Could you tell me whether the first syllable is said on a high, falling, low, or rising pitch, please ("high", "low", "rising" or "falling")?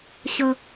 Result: low